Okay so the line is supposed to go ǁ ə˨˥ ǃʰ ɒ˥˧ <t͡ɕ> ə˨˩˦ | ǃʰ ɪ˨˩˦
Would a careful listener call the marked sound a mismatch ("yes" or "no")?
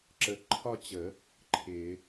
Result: no